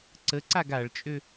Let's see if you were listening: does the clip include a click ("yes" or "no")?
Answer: yes